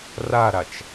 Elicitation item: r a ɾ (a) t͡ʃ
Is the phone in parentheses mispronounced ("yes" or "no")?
no